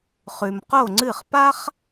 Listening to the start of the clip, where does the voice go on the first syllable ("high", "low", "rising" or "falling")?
low